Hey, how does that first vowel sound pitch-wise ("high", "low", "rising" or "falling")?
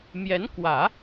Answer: rising